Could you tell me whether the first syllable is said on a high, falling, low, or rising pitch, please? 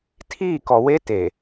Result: falling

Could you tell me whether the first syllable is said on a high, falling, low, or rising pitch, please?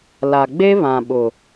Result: low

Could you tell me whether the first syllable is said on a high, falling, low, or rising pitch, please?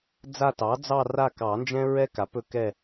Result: falling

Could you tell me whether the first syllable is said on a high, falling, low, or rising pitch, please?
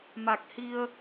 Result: low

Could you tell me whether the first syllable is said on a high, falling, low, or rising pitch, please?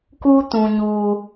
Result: high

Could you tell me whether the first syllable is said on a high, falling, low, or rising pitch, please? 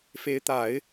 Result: rising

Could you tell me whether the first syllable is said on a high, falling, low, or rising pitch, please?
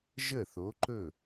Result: falling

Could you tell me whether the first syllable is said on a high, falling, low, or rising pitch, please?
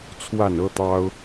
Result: falling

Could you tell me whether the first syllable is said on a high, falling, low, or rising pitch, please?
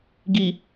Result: low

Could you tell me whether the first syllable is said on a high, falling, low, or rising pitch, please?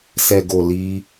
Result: low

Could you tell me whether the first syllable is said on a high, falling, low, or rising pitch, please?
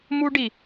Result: high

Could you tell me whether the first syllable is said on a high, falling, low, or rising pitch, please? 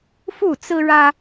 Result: falling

